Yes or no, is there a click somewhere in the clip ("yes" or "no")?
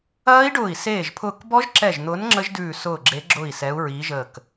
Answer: yes